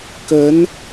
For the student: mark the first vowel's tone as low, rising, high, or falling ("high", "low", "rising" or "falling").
rising